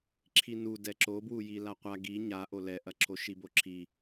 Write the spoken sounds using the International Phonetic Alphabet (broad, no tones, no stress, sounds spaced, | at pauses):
ǁʰ i n u d ɛ ǁ o b w u j i l a qʷ a ɡ i ɲ a ʔ o l ɛ ʔ ɐ ǁʰ o ʃ i b o ǁʰ i